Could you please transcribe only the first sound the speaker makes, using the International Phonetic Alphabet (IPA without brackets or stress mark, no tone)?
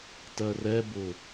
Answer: t